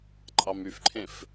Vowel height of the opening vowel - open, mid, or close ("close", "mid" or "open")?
open